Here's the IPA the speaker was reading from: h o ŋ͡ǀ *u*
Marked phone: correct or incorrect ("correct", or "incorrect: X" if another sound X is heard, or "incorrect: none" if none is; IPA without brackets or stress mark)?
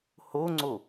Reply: incorrect: o